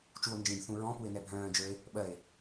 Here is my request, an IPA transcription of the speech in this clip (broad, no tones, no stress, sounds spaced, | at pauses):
t͡ʃ u o̯ n d͡ʒ ĩ b θ ũ ɹ ɔ̃ p u e̯ n ɛ bʱ œ̃ː d͡ʒ ə˞ e̯ | ɓ ɜ e̯